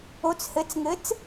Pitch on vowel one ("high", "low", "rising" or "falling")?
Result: rising